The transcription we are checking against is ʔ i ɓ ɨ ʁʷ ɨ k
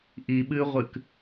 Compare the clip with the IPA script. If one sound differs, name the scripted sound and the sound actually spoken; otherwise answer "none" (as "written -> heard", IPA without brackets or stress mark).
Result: none